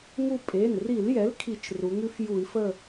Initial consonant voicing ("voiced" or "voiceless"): voiced